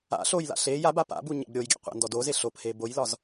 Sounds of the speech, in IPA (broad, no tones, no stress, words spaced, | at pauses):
a̰ ɬojla̰ ɬe jaba pa̰bu ɲa̰bɾʲojɡʲa̰ qʷa̰ndɔdoze ɬophe bojlɒz